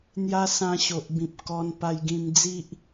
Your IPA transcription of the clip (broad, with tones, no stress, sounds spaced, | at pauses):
n̪ j a˦ s ã˧ ɕ o˨ ʔ b ĩ˨ p̚ k ɔ˧ n p a˧ j ɡ ĩ˧ m d͡z i˦ ʔ